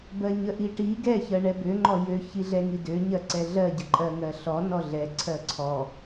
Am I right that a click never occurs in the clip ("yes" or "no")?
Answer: no